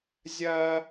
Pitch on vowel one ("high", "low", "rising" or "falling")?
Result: high